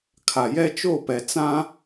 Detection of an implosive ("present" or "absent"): absent